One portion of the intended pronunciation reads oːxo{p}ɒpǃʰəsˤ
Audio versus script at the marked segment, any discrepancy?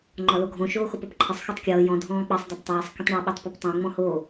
no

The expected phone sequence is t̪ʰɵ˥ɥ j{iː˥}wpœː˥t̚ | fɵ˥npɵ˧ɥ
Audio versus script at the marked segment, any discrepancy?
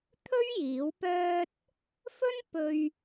yes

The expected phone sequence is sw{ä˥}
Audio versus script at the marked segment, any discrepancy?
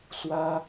no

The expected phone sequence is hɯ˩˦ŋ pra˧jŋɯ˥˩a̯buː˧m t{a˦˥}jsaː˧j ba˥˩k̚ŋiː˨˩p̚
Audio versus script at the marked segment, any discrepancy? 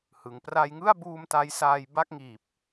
no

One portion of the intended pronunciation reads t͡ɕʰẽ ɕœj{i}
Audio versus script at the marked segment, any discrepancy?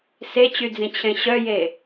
yes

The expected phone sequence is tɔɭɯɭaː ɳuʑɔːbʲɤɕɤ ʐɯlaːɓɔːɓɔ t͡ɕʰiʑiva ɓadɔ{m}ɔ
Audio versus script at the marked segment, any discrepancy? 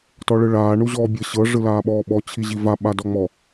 yes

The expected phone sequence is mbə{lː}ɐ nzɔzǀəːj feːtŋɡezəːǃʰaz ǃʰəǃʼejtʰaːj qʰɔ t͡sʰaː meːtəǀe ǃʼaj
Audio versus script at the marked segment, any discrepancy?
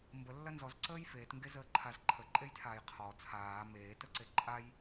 no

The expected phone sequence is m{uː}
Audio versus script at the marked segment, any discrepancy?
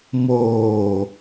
yes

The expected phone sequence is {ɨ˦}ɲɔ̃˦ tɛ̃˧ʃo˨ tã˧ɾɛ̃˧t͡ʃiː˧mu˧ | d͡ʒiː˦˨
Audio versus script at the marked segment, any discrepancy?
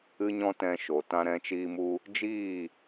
no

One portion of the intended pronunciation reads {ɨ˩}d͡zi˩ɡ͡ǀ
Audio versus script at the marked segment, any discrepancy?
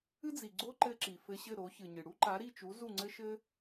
yes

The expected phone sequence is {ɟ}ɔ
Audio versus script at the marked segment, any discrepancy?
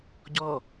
no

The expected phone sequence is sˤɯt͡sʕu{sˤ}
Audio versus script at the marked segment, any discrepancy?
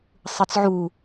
yes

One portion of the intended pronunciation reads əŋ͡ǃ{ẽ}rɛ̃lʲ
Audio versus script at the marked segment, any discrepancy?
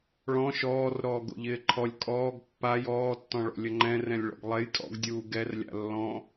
yes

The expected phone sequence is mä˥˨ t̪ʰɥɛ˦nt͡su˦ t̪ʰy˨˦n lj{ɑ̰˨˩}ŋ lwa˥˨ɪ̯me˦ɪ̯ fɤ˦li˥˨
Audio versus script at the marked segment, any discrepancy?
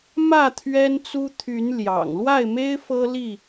no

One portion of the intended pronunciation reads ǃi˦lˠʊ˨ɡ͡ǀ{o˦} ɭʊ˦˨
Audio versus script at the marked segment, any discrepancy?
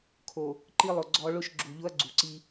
yes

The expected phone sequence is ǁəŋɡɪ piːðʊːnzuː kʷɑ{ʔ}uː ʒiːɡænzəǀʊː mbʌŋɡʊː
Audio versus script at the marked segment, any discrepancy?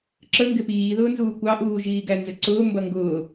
no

